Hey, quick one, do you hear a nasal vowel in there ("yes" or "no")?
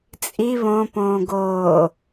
yes